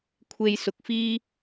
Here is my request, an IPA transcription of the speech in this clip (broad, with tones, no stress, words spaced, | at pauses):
kʷʰe˧jsʊ˨k̚fiː˥